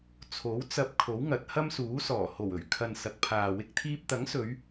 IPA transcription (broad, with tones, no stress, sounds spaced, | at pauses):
t͡sʰ o˨˥ w t͡s ɐ˧ p̚ kʰ o˨˥ w ŋ ɐ˨˥ t̚ h ɐ˥ m s uː˨˥ s ɔː˨˩ h o˨˩ w ɵ˨˩ ɥ kʰ ɐ˨ n s ɐ˨ k̚ pʰ aː˨ w ɪ˥ k̚ t̪ʰ iː˥ p̚ t̪ ɐ˨˥ ŋ s ɵ˨˧ ɥ